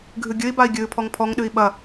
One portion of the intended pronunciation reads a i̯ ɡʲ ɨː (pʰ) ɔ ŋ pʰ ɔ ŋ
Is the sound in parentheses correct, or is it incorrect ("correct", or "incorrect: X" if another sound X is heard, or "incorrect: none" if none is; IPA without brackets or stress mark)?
correct